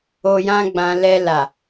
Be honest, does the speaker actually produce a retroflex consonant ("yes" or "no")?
no